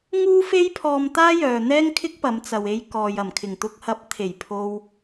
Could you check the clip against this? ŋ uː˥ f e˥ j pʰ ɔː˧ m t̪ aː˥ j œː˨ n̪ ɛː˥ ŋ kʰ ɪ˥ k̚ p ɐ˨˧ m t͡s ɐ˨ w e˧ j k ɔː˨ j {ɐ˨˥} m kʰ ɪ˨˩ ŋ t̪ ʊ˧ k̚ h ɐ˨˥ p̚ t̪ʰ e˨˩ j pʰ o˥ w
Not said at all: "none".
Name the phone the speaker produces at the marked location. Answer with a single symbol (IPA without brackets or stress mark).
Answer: ɐ˨˩